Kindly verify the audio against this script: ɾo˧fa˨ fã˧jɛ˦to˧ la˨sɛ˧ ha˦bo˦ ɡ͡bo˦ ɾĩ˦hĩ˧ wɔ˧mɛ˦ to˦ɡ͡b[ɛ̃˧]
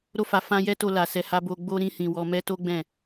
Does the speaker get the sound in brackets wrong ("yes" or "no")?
yes